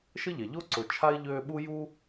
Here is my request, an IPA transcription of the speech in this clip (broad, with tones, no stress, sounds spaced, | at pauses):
ʃ ə˥ ʎ ɛ˩ ʎ o˥ ǀ ʊ˨ t͡ʃʰ a˥ ɪ̯ ʎ øː˦ ɓ u˥ j u˥